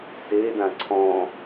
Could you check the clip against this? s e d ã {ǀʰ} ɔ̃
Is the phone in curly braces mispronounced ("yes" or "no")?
no